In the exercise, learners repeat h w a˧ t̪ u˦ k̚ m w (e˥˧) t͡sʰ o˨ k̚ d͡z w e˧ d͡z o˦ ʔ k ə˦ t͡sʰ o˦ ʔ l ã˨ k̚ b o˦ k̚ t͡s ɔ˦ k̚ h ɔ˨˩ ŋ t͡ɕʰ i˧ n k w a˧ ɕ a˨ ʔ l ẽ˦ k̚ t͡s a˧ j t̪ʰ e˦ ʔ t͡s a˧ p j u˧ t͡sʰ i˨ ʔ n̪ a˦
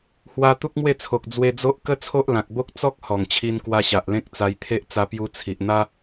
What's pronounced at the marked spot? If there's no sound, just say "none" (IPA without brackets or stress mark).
e˥˧